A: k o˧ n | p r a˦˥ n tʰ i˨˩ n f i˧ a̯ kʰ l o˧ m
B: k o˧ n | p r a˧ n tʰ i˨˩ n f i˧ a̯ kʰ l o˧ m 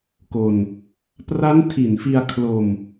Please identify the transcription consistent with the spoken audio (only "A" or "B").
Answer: A